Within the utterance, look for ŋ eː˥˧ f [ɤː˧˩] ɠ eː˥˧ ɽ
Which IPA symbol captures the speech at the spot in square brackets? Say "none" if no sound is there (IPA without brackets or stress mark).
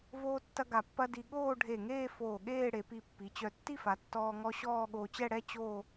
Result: oː˧˩